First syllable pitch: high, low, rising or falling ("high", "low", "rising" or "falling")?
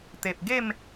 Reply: low